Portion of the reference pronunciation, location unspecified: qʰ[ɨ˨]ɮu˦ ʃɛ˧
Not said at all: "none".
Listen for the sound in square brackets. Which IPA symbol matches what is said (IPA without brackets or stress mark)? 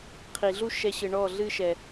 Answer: i˨